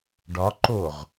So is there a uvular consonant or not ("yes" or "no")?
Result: yes